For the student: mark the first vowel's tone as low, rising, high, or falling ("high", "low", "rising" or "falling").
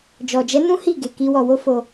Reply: low